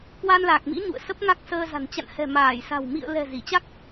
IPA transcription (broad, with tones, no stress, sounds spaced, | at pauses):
k w a˧ n l aː˨˩ k̚ m ḭ˧˥ ɲ ṵ˧˨ ə̯ s ə˦˥ p̚ ŋ a˦˥ k̚ s əː˧ z a̤˨˩ n t͡ɕ a̰˧˨ n h ɛ̤˨˩ m aː˧˩ j s a̤˨˩ w m ḭ˧˨ ə̯ l ɛ̤˨˩ z i˧˩ t͡ɕ a˦˥ k̚